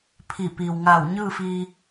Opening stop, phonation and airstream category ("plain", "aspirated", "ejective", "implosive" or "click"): aspirated